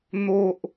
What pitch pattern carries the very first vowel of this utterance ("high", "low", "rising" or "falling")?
high